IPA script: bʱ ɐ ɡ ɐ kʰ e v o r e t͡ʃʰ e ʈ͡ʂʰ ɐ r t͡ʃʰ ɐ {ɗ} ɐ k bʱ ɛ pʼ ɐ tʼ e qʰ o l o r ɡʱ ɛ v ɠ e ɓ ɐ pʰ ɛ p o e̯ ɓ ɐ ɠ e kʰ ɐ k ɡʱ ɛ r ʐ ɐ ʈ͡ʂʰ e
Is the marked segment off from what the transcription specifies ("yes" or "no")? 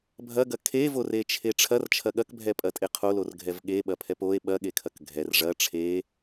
yes